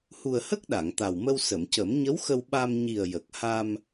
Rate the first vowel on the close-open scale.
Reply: close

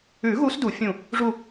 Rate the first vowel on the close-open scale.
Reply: close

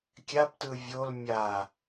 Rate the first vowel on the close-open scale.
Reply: open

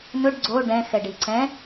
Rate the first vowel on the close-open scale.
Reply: close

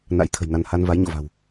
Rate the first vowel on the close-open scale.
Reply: open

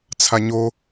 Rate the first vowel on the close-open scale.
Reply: open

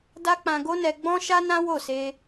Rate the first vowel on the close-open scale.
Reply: open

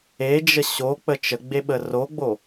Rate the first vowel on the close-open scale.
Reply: mid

